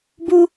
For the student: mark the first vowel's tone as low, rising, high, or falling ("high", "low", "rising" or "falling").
low